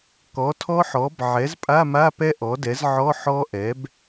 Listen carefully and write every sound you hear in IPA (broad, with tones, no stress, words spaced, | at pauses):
kɔ˩˥tʰɔ˦˥ħɔ˩˥b ʕɛ˩˥zpʼa˧˥˧ma˧˥˧pɛ˦˥ ʔɔ˩˥dɛ˩˥zʕɔ˧˥˧ ħɔ˦˥ʔɛ˩˥b